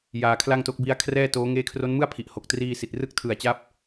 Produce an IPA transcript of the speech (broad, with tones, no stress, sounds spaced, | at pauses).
j aː˧ kʰ l a˥˩ ŋ t o˦˥ k̚ b i˦˥ a̯ kʰ r ɛː˥˩ t oː˦˥ ŋ eː˦˥ kʰ r o˦˥ n m ɯ˥˩ a̯ pʰ i˨˩ ʔ h o˨˩ k̚ t r iː˧ s i˨˩ t̚ r ɯ˥˩ k̚ tʰ ɯ˨˩ a̯ t͡ɕ a˦˥ p̚